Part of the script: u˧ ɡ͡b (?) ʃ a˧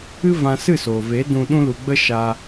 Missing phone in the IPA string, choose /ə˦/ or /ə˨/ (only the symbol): ə˦